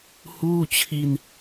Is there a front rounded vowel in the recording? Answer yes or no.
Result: no